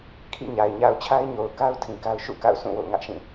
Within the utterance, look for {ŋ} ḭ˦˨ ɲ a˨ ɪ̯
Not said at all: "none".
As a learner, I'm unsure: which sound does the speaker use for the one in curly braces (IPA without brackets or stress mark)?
kʰ